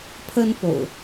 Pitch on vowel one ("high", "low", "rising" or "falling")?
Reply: high